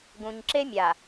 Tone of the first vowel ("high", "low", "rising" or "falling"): low